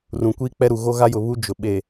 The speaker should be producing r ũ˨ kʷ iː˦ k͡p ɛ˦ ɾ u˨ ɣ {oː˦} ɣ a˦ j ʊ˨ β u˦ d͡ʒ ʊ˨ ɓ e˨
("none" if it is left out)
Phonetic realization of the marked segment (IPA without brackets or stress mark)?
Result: o˦